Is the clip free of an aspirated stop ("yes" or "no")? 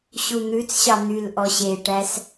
yes